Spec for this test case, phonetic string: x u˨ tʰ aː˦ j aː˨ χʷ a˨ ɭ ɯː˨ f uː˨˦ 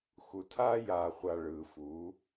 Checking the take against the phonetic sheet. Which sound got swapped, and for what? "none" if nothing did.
none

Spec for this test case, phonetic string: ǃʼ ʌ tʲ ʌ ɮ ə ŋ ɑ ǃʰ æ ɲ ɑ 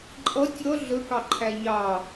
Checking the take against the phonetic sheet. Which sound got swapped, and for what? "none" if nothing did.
ŋ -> k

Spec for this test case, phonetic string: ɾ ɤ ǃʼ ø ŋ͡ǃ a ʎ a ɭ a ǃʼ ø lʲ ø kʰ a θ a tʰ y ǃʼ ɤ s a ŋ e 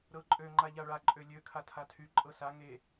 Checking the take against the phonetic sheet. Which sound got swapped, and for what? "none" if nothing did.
θ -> tʰ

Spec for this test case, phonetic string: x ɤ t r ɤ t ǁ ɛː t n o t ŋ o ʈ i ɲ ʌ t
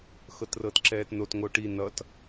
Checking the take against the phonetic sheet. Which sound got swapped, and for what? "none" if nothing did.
ɲ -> n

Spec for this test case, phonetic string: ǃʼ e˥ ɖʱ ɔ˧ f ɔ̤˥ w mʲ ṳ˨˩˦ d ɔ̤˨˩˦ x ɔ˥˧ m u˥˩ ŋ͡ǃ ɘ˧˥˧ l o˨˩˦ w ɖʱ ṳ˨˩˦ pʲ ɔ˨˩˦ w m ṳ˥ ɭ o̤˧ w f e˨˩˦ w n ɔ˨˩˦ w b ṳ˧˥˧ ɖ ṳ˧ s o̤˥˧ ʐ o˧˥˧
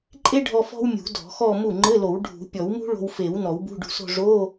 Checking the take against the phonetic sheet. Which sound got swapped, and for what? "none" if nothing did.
none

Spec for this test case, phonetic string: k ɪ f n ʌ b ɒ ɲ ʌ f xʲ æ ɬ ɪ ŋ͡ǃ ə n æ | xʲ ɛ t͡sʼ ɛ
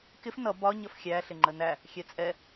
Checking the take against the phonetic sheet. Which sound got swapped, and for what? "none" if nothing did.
none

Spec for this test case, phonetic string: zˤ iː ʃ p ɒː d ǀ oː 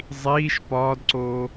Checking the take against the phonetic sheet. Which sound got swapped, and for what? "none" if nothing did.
none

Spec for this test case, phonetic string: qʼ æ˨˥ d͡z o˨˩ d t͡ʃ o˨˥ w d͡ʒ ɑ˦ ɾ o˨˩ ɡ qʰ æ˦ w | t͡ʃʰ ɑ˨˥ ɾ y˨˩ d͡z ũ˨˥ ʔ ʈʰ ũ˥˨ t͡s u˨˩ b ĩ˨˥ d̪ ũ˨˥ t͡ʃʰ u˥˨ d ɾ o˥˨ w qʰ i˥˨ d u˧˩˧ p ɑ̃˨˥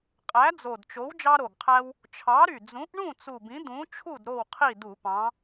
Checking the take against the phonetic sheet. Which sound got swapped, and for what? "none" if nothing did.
ʈʰ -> ɳ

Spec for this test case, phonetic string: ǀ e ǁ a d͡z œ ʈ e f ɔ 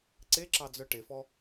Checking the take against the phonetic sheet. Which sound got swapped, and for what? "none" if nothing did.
a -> ɑ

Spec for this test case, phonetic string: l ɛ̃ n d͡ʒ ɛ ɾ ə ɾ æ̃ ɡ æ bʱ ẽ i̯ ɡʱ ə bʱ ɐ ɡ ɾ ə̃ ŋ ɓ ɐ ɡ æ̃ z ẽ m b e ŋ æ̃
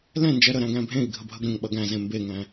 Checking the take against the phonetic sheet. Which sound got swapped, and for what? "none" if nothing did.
æ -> æ̃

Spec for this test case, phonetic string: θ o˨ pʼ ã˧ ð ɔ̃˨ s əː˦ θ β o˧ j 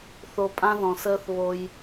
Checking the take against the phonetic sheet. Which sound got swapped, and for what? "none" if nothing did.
none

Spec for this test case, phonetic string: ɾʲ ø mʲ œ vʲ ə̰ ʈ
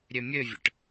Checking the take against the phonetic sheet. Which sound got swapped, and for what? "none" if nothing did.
œ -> ø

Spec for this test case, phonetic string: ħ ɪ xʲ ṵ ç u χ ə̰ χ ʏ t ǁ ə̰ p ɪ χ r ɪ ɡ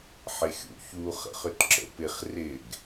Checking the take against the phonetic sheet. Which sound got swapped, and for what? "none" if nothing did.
none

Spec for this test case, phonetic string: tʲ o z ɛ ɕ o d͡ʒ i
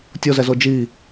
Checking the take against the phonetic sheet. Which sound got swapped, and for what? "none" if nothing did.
ɕ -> z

